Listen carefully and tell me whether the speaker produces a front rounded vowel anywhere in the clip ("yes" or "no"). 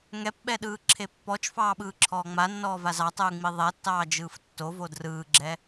no